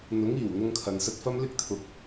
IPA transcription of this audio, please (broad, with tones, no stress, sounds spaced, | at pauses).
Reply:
n̪ ʊ˨˥ ŋ iː˨˩ w n̪ ʊ˧ ŋ kʰ ɐ˨ n s ɐ˧ t̚ f ɐ˥ m l ɪ˥ k̚ t̪ʰ ʊ˧ k̚